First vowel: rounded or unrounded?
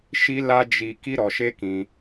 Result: unrounded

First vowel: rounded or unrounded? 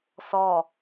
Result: rounded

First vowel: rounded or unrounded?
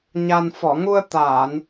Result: unrounded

